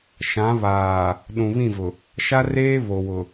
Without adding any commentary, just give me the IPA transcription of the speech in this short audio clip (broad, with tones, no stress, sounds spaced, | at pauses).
ʃ ã˨˦ β aː˨ | ɗ ũ˨ β ĩ˦˨ v ʊ˨ | ʃ a˦ r eː˦ β o˨ w ʊ˨